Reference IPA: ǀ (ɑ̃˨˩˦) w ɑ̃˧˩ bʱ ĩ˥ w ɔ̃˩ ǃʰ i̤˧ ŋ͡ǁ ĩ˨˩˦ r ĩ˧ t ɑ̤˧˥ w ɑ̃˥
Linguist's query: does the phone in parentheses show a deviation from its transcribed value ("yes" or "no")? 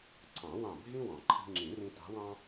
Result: no